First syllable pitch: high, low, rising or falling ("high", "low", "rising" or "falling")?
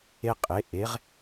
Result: high